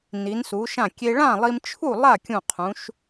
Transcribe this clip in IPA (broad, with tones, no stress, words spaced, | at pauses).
ni˩˧nsu˩˧ ʃã˧˩kʲe˧ ɭã˥˨lˠi˧mt͡ʃʰu˥˨ lˠa˥˨ kʲũ˧˩qʰũ˩˧ʃ